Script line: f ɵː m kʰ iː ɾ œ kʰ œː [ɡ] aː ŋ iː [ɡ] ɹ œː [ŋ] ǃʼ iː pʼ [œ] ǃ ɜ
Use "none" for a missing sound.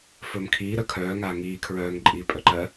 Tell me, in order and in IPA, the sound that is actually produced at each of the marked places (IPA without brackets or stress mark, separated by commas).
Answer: ŋ, kʰ, ŋ, œ